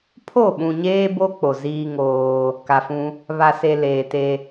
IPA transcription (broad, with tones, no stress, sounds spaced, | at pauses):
pʰ o˦˨ ɓ ũ˨ ɲ eː˦ b o˦ k͡p o˨ z iː˦ ŋ oː˦ | k a˨ f ũ˦ | β a˨ s e˨ l eː˨ t e˦